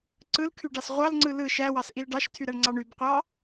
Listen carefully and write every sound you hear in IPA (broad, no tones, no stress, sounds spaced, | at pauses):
ǀ ɯ l kʰ y ɖ ɑ s ʁʷ ɑ l ŋ͡ǀ ɯ l ɯ ʃ æ w ɑ s ʔ i l ɖ ɑ ʃ tʰ y ɾ æ ɳ ŋ͡ǀ ɑ ɳ y b qʷ ɑ